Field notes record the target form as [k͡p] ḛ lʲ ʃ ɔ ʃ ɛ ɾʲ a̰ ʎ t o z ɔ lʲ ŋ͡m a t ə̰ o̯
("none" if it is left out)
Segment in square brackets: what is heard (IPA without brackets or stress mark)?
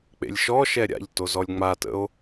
k͡p